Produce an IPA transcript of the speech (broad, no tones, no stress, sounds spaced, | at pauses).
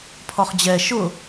pʰ ɔ χ d͡ʑ ɛ ʃ ʊ